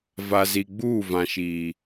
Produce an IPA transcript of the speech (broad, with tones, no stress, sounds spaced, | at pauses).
v a˨ z i˨ ɡ͡b uː˦˨ v ã˨ ʃ iː˨